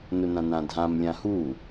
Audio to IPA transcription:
n ʊ n ã n ã dʱ ã m lʲ ã h u

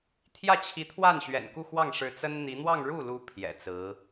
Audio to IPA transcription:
t̪ʰ j ä˥˩ t͡ɕʰ i˧˥ t̪ʰ w a˥˩ n ɕ ɥ ɛ̰˨˩ n k u˥˧ x w ɑ˥˩ ŋ ʂ ɻ̩˧˥ t͡s ə˥ n n̪ i˧˥ n̪ w ɑ˥˧ ŋ ɻ u˥˩ l u˧˥ pʰ j ɛ̰˨˩ t͡s ɹ̩˧˥

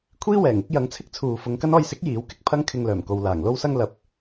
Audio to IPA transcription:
kʷʰ iː˥ w ɛː˨˩ ŋ ɪ˥ k̚ j ɐ˨˧ ŋ t͡sʰ ɪ˥ k̚ t͡sʰ uː˨ f ʊ˨˧ ŋ k ɐ˥ n ɔː˧ j s ɪ˨˥ k̚ j iː˨˥ w k ɪ˥ k̚ pʰ ɐ˥ ŋ kʰ ɪ˧ ŋ l œː˨˩ m k o˨ w l aː˨˩ ŋ l o˥ w s ɐ˥ ŋ l ɐ˨˥ p̚

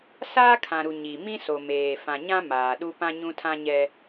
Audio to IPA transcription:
s aː˦ kʰ ã˨ ɾ u˨ ɲ i˨ m ĩ˦ s o˨ m eː˨ f ã˨ ɲ ã˦ m aː˨ ɗ u˦ p ã˦ ɲ ũ˦ tʰ ã˦ ɲ ɛ˦

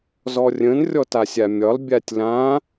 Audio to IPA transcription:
z ɔ rʲ ə̃ n rʲ ɔ t a sʲ a mʲ ɒ l bʲ a tʲ l ã

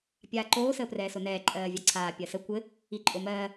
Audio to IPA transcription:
pʲ aː ǃ oː s əː p r ɛː s o n ɛː ǃʼ ɜː vʲ a ǀʰ aː pʲ ɜ s ə kʷ ɘ | i ǃʼ o m ɜː

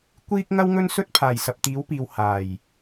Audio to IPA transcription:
kʷ iː˥ k̚ ŋ ɐ˥ w ŋ ɵ˥ n s ɵ˥ t̚ pʰ aː˨˩ j s ɐ˨ p̚ t̪ iː˨˥ w p iː˨ w h aː˨˩ j

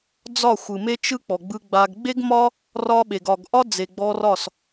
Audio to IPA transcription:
d͡z ɒ˦˨ xʷ ɯ˨ m e˦ t͡ʃ ɯ˦ k͡p ɔ˨ ɡ͡b ɯ˧ ɡ͡b a˧ ɡ ɡ͡b e˦ ɡ m ɒ˦ | r ɒ˦ ɓ e˨ ɡ ɒ˨ ɡ ʔ ɒ˦ d͡z e˨ ɡ͡b ɔ˧ r ɒ˦˨ s

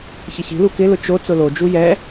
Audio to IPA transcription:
ç ɪ ç i̤ l u k ɪ l ʊ t͡ʃ o t͡s ʊ l o d͡ʒ u j ɛ

